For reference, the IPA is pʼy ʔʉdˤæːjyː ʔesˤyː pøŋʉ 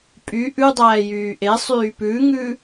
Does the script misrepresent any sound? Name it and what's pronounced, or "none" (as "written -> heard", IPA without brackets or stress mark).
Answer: ø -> ʉ